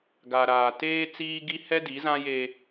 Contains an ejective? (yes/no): no